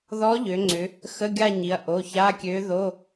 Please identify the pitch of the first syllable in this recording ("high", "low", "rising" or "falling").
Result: rising